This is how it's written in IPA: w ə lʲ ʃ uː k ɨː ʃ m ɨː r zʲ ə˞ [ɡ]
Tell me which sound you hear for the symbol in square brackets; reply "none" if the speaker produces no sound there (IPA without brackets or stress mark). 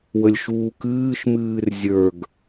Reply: ɡ